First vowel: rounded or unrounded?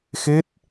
unrounded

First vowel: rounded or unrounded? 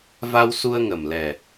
unrounded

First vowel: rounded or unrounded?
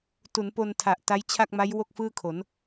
rounded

